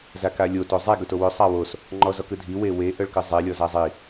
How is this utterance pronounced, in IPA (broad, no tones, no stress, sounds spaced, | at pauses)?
z a k a lʲ o t o zˤ e ɡ ɵ t o w ɵ sˤ a w o s | ŋ͡ǃ ɔ z ɔ k ɯ dʱ i w e w e ʔ œ ɭ k ɯ zˤ e lʲ ɔ z a zˤ i